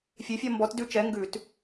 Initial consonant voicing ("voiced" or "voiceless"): voiceless